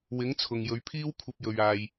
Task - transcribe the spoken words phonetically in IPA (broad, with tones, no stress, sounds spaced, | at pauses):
w ɪ˨˥ ŋ t͡sʰ ʊ˨ ŋ j ɵ˨˧ ɥ pʰ iː˥ w kʷʰ ɐ˥ p̚ j ɵ˧ ɥ aː˧ j